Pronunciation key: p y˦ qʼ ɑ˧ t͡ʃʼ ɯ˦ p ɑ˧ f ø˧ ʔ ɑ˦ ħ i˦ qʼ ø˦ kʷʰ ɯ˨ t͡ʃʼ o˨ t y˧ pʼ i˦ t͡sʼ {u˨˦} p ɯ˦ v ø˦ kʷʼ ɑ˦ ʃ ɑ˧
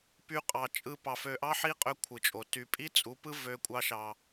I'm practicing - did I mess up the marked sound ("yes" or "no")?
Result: no